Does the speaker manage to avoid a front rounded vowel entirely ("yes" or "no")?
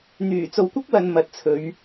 no